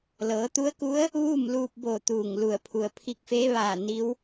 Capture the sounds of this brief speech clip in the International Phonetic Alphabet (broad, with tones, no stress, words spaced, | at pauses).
lɤː˩˧t̪u˧˥ə̯ku˧˥ə̯ | ʋuː˥˨mluː˧p̚boː˧˩ t̪uː˧˩ŋlu˧˩ə̯ pʰu˩ə̯pʰi˧k̚feː˧˥ ʋaː˧˩ ni˧˥w